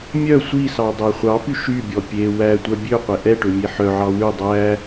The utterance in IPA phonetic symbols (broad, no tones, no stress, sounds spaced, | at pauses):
mʲ œ sʷ i s ɑ dˤ æ χʷ ɑ p y ʃ y bʲ ɔ pʲ e w æ tʷ œ bʲ ø qʷ e ʔ ɛ ʈ ø mʲ e ħ œ ʕ ɑ w ʉ dˤ æ